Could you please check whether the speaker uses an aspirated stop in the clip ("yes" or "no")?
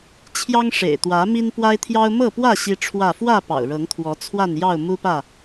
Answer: yes